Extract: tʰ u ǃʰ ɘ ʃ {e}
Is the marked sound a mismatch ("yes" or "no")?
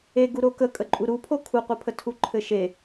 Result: no